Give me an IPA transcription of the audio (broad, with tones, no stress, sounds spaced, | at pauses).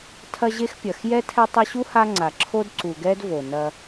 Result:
tʰ ɐ˦ ʑ e˦ x pʲ ɐ˨ x j ɛ˥ tʰ ɛ˦ tˤ ɐ˦ ɕ u˥ h a˦ ŋ͡ǀ a˨ ǁʰ o˦ d ǀ u˨ ɡ ɛ˦ d v o˩ n ɐ˨